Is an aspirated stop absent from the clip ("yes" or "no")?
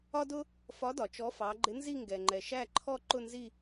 no